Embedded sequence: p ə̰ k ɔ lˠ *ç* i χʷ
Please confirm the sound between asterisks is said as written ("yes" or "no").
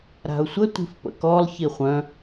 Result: yes